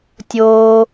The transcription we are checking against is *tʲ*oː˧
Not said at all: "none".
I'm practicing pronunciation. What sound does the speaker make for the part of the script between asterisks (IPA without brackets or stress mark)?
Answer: tʲ